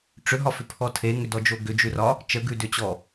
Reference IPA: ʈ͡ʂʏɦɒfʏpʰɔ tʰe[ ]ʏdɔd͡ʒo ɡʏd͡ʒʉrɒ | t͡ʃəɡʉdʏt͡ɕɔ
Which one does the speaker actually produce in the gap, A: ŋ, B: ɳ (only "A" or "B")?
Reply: A